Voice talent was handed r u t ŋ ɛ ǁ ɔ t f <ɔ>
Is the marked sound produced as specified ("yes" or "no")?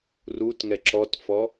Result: yes